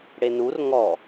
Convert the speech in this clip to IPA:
ɽ e n u r ŋ ɔ

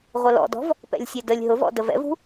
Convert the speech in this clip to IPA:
ʁʷ ə l ɔ̰ d ɔ̤ v | p ɛ̰ lʲ sʲ ɛ d ə lʲ ɦ ʊ v ɔ̰ d ə v ɛ̰ v ṳ

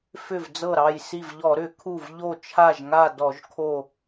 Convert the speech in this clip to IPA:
f ʏ˧˩ v d͡z ɤ˧˩ ɾ ɑ˧˩ j s i˧˩ v ʎ ɔ˧˩˧ ɾ ʏ˧˩˧ kʰ u˧˩ v ʎ o˧˩ t͡ʃʰ a˧˩ ʒ ŋ a˧˩ d ɔ˧˩˧ ʒ kʰ o˧˩

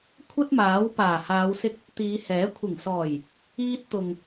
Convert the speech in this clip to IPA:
kʷʰ ɐ˥ t̚ m aː˨˥ w p aː˨˩ h aː˨˧ w s ɪ˧ k̚ | t̪ iː˨˧ h ɛː˨˥ kʷʰ ɪ˨˩ ŋ s ɔː˨˩ j | iː˧ t̚ t̪ ʊ˨ ŋ

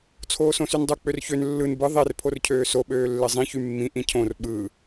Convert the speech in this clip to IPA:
t͡sʰ oː s õ s y n dˤ u k͡p ø r ç ø n lː ɯ n b ɯ ðˤ e r pʰ o r cʰ øː s o ɓ øː lː e zˤ ĩ ç y mː ĩ ʔ ĩ cʰ õ r ɓ ɯ

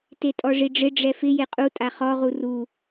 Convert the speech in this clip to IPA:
t e tʼ ɔ ʐ i ɖ͡ʐ ɪ ɖ͡ʐ ɛ f ɪ j e qʼ u tʼ a χ ɔ ʁ u r u

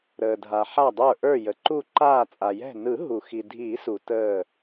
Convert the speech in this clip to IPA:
ɾ əː˩ dʱ a˩ ħ a˧˩ dˤ ə˞˧˩ ʔ ə˞˧˩ j ə˩ ǃ u˧˩ ǃ aː˧˩ t͡sʼ a˩ j ɛ̤˧˩ n ɯ˨˩˦ ɦ u˩ x i˩ dʱ iː˨˩˦ s u˩ t əː˧˩

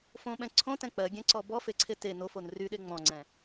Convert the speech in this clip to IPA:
f õ ɓ ɛ̃ ǀʰ õ t ɛ̃ k͡p ɜ ɡʲ ɛ̃ ǀ ɔ b ɔ f e ǀʰ e t e n o f o n r y ɗ e ŋ͡m ɔ̃ ŋ͡ǀ ɛ̃

